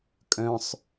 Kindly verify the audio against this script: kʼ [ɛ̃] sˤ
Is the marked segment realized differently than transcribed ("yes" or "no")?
yes